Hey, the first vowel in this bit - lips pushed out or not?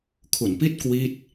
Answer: yes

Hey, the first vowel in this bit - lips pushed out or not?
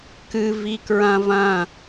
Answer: no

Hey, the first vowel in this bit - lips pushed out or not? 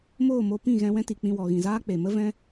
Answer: yes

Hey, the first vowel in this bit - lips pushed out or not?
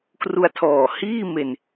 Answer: yes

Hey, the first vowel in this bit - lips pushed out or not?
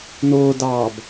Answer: yes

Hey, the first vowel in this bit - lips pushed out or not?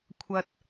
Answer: no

